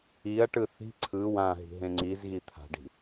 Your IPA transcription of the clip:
i ɐ̯ ʈ ɯ θ i̤ ǀʰ ɯ w ã ɦ i̤ ɦ ẽ ŋ͡ǀ i z ɣ i t̪ʰ a̤ ɖ i̤

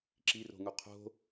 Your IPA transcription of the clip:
ǁ i r o̤ ŋ u qʰ o̤

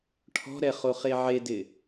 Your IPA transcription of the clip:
ʈʰ ɔ̤ ɾ ɛ χ o χ e ʕ e d ɪ

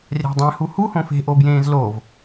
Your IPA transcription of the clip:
rʲ æ̤ dˤ ẽ h u h u h õ f e̤ ʔ o b j ẽː z l o v

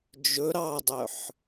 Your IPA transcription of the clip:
d͡ʒ ɵ ɾ ɑ dˤ œ ħ

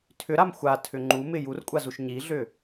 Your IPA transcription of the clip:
tʰ ʏ ɾ a m xʷ a tʰ ʏ ŋ͡ǃ u m ɪ j u r kʷʼ a z u ʃ ɲ i ɮ ʏ

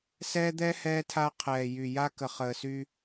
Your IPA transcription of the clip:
s ɛː˦ d̪ ɛ˦ h ɛː˦ tʰ a˦ qʰ ɛː˨ j y˨ j a˦ k ə˨ χ əː˨ s y˦

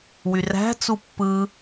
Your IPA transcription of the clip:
w y r æ̤ t͡s u pː ɯ

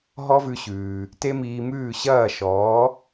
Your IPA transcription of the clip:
ɦ ɔ˥ v ʉ˧ ɕ ʉː˩ | t e˥ m iː˧ m ʉː˥˩ ɕ ɐː˥˩ ʃ ɔː˩˥

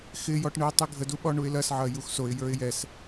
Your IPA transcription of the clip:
x ɪ j ɔ ʈ ɳ ɯ ɪ̯ tˤ i ɡʱ ə d u ɓ ɔ ɳ u ɪ̯ l ɐ s ʕ ɐ j u x s o ɪ̯ j ə˞ ɪ̯ j ɛ s

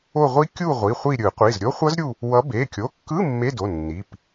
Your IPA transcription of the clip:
o˦˨ ʁʷ i˦˥ kʲ u˦˨ ʁʷ i˩˧˩ χʷ i˦˨ ɾʲ ɯ˨˩˦ qʷ i˩˧˩ z ɾʲ o˦˥ χʷ ʌ˦˥ z ɾʲ u˦˨ | w ʌ˨˦ b e˩˧˩ kʲ o˩˧˩ kː ɯ˧˥˧ mː e˧˥˧ d o˩˧˩ nː i˩˧˩ p

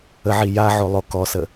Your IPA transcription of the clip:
ə ʕ i j a ʕ o lˠ o k ɔ s ə

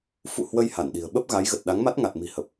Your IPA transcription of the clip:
f ṵ˧˨ h w ə˧ j h a˧˩ n ɗ i̤˨˩ ə̯ ɓ ə˦˥ p̚ ɣ a˨˦ j ɣ ə˨˩ t̚ ɗ a˨˦ ŋ m a˦˥ t̚ ŋ a˨˩ t̚ m i̤˨˩ h ə˨˩ p̚

